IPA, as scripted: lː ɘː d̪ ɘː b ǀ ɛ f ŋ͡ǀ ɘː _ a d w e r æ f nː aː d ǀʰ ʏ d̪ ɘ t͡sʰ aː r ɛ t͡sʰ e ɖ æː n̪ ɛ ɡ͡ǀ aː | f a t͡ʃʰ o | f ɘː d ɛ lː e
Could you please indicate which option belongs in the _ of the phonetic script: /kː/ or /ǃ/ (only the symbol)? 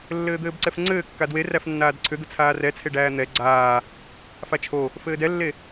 kː